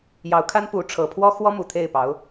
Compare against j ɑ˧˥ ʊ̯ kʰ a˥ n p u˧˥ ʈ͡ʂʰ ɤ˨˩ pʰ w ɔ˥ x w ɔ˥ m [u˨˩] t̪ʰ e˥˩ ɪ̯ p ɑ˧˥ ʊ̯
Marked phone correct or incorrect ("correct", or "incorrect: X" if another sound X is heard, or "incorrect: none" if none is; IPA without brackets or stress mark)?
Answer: correct